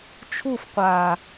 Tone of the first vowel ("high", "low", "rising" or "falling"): falling